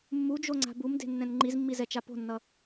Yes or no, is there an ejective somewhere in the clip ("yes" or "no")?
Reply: no